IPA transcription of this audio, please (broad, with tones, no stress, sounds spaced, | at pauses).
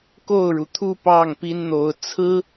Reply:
k o˥˩ ʊ̯ ɻ u˩ t̪ʰ u˥˧ p ɑ˥˩ ŋ p i˥ n n̪ o˧˥ ʊ̯ t͡sʰ ɹ̩˥